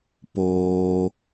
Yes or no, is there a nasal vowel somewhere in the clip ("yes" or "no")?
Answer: no